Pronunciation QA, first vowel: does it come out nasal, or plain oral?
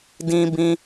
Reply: nasal